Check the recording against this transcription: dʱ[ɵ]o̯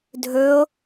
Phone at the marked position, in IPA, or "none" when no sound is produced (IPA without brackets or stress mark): ɵ